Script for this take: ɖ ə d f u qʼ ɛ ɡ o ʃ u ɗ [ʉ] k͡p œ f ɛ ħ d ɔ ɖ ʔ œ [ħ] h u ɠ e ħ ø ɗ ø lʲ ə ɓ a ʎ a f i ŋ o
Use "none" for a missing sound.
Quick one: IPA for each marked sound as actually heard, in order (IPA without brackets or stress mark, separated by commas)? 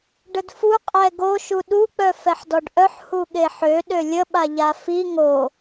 u, ħ